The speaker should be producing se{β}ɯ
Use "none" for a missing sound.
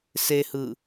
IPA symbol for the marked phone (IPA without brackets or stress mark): h